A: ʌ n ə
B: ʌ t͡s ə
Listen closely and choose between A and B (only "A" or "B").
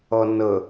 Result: A